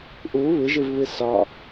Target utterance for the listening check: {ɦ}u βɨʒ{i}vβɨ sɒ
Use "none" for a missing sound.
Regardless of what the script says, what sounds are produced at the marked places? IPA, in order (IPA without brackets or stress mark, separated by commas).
ʔ, ɨ